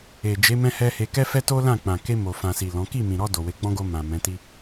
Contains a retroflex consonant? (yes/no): no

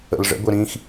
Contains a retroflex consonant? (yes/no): yes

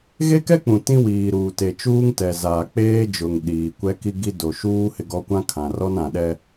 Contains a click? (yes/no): no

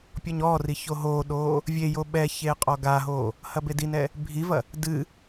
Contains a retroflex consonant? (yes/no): no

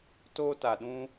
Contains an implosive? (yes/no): yes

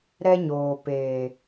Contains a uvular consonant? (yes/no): no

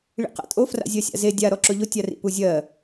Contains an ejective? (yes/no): yes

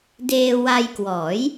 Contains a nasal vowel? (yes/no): no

